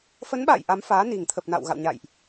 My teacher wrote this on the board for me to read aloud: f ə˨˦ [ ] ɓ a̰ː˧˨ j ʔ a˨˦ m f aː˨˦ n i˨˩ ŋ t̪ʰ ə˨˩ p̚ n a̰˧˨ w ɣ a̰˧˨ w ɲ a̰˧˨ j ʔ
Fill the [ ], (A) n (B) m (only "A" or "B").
A